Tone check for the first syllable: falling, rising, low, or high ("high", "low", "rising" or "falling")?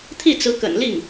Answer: falling